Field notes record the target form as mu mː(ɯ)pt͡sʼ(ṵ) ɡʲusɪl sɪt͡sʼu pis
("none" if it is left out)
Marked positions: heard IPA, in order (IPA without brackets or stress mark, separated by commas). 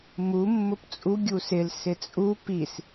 ʊ, u